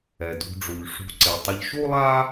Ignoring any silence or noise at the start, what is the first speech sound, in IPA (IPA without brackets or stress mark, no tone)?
ɛ